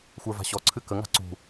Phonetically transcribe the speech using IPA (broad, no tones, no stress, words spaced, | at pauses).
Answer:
xʷə˞va̤ɕɔ ǀʰɨkə ŋa̤ǀṳ